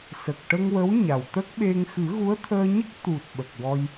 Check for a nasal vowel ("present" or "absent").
absent